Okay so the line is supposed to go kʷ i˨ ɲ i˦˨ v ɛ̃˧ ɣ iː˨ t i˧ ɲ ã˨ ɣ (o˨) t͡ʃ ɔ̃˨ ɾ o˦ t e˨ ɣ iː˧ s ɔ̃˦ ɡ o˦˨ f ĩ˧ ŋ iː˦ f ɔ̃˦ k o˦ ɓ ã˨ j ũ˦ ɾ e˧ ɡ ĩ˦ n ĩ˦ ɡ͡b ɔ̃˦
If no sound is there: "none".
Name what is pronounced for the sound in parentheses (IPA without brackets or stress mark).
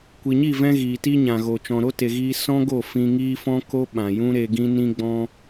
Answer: o˨